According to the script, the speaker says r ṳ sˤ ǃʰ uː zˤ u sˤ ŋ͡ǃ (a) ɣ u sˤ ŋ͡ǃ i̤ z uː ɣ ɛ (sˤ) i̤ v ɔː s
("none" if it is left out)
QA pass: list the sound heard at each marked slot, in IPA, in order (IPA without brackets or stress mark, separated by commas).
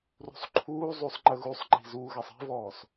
ə, sˤ